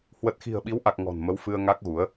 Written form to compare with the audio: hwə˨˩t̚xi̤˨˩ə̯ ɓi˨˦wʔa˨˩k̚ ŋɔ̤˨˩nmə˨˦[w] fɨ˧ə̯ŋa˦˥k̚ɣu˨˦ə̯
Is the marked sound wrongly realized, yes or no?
no